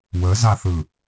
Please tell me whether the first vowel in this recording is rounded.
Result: no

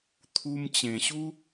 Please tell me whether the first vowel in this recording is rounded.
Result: yes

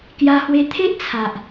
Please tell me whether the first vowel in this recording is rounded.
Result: no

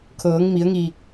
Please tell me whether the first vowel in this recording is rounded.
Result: no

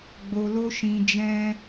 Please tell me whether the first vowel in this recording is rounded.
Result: yes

